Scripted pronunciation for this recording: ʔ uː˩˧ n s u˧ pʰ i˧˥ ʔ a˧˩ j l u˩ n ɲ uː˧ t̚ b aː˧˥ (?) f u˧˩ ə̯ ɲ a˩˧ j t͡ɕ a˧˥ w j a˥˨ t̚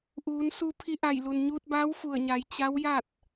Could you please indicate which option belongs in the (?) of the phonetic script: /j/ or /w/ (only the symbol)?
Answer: w